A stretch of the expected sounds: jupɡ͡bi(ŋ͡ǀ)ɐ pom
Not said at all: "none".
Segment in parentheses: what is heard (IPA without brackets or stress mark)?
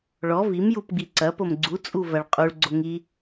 ǀ